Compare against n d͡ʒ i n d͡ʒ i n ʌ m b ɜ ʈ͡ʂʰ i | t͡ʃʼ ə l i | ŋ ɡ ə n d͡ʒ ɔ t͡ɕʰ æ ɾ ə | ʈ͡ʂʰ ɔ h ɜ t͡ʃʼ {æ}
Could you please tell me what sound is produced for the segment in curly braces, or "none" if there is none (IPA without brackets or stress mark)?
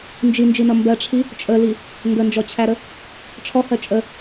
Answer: ə